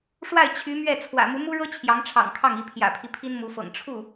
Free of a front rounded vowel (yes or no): no